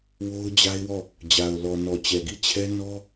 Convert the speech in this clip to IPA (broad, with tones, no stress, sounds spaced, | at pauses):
w o˦ ʊ̯ d͡ʑ a˦ ɪ̯ w ɔ˦˨ | d͡ʑ a˨ ʊ̯ l ɔ˨ n ɔ˨ t͡ɕ ɛ˨ ɡ i˦˨ t͡ɕʰ ɛ˦ n ɔ˦